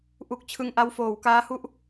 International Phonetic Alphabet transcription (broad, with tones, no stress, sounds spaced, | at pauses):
ʔ u˨˩ k̚ t͡ɕʰ ɯ˨˩ ŋ ʔ a˧ w f oː˩˦ w k aː˦˥ h u˥˩ ʔ